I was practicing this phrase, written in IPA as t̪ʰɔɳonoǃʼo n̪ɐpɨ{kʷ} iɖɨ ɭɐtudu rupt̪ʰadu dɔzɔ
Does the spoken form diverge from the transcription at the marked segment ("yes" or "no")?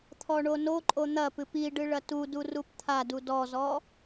yes